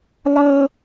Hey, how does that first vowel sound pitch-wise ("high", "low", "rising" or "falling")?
high